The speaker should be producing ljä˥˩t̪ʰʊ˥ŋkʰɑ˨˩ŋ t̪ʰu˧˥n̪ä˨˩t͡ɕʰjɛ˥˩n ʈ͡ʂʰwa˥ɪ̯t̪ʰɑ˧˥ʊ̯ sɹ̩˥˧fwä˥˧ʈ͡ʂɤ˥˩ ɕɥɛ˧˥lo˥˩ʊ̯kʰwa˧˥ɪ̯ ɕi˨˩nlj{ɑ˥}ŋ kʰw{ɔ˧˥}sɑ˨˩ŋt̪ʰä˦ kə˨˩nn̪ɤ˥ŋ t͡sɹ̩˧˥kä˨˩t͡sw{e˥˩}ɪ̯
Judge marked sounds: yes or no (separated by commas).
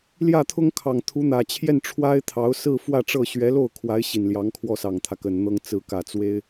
no, no, no